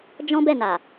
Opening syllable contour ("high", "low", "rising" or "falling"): high